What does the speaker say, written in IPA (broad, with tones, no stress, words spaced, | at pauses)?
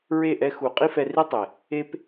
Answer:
ɹe˦˨ʔɛ˧ xu˨ qʼi˦fɛ˧ri˦tˤe˨ | e˧p